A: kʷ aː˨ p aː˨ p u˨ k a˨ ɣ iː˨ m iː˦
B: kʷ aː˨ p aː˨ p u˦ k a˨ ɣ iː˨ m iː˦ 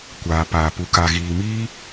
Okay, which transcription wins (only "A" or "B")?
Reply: A